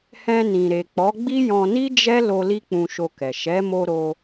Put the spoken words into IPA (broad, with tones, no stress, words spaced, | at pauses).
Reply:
hɛ̃˧nĩ˨ ɾe˨k͡pɔ˨˦ɡ͡bi˦ jɔ̃˧ni˦d͡ʒɛ˦ lo˧ li˦k͡pũ˧ʃo˧kɛ˨ ʃɛ˨˦mo˧ ɾo˧